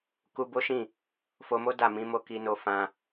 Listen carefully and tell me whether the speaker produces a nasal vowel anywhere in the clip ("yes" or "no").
yes